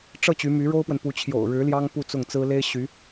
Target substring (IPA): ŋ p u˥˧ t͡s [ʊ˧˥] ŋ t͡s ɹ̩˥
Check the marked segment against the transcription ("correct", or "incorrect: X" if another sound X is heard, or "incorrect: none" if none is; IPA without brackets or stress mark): incorrect: ʊ˥˩